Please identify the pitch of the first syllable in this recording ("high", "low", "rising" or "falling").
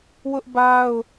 high